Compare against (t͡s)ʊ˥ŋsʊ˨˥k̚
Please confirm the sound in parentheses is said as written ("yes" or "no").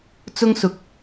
yes